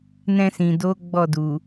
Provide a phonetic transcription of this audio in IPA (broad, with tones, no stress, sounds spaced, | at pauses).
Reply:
n ɛ̃˧ s ĩ˨ d o˨˦ ɡ͡b ɔ˦˨ d u˨